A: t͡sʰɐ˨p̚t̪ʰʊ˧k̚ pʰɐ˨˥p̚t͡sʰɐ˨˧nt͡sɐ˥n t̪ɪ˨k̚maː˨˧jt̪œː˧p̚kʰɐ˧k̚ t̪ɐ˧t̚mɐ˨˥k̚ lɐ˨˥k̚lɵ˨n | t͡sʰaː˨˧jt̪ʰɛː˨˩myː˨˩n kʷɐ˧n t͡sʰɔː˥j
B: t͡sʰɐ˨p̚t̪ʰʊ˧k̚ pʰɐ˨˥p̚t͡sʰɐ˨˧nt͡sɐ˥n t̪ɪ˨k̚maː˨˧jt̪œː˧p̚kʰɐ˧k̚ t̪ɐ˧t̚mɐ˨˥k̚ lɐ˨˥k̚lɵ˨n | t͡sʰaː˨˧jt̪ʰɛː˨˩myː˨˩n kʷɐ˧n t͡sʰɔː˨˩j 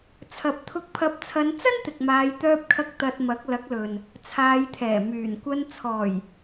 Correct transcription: B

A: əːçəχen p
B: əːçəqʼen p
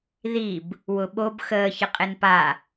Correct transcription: B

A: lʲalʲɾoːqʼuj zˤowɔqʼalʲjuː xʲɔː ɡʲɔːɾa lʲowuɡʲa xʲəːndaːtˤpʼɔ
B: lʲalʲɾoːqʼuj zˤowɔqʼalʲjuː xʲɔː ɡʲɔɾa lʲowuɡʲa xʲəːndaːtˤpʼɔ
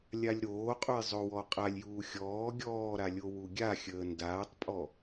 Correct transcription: A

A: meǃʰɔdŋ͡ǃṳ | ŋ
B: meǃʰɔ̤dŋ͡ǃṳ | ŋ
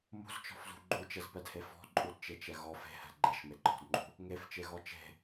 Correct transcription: B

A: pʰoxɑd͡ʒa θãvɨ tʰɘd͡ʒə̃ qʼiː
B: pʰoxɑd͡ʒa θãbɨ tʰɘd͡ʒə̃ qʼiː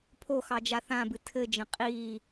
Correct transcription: B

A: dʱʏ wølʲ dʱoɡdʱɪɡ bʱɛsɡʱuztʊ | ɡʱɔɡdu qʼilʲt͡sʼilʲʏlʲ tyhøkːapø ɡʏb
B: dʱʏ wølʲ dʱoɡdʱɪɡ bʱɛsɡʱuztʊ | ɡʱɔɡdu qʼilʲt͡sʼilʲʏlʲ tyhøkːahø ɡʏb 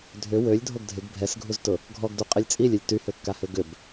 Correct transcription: B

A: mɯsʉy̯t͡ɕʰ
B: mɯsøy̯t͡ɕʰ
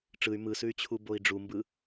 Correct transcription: A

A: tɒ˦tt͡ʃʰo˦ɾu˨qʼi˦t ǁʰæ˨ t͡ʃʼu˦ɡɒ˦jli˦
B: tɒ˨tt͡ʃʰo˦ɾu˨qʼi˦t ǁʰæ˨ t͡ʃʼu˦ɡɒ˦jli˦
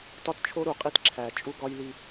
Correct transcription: A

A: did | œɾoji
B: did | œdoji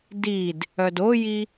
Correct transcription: B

